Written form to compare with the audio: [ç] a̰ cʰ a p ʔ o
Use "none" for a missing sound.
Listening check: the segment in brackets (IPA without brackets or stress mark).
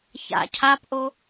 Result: ç